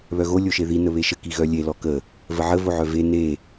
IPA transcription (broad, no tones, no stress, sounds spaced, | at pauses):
β œ ɣ o lʲ o ʃ e ð i n ə β e ʃ ə k i ɣ œ lʲ e l ɔ k ə | v ə ʕ ə v o ʕ œ v e n e